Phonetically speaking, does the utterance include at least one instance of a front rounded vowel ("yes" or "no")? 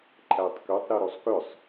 yes